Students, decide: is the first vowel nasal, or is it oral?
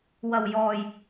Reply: oral